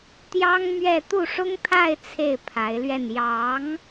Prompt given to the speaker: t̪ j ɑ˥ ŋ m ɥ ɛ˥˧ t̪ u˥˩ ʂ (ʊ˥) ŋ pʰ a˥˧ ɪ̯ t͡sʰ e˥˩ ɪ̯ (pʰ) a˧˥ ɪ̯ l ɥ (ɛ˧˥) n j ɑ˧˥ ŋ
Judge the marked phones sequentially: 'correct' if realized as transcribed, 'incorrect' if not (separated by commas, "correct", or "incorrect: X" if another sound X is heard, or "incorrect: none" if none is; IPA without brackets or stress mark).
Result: correct, correct, incorrect: ɛ˥˩